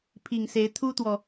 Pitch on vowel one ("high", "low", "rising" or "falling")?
low